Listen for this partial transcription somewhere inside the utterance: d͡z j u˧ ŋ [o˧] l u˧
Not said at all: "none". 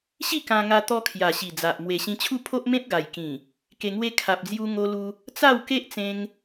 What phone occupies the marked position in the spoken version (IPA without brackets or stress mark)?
o˧